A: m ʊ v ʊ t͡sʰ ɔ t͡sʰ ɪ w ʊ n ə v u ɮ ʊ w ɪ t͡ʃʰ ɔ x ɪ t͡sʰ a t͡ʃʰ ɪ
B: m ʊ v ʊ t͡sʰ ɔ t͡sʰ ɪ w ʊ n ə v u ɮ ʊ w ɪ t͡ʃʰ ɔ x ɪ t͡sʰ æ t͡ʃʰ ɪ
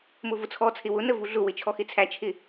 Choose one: B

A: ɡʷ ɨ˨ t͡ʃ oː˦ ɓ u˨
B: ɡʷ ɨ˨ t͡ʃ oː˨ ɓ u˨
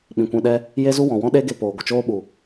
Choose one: A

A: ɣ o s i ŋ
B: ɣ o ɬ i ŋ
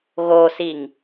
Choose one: A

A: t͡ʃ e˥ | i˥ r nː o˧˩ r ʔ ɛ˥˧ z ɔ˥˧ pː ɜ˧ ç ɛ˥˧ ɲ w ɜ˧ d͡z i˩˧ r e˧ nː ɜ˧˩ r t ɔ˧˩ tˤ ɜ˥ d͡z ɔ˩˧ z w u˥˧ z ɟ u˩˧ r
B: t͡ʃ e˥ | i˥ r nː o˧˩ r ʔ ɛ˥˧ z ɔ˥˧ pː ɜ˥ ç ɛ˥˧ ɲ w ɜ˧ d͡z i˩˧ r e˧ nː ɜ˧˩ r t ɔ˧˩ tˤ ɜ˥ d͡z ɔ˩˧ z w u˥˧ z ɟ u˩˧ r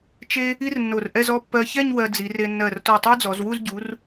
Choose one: A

